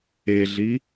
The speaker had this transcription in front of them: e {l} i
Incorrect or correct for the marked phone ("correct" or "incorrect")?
incorrect